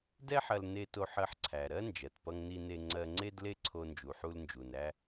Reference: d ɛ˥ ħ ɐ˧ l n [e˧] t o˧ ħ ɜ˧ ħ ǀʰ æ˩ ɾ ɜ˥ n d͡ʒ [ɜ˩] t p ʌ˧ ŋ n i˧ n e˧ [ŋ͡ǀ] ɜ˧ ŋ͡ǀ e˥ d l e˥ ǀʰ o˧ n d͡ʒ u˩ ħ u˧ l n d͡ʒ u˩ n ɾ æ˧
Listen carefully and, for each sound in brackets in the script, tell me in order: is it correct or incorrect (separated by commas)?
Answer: correct, correct, correct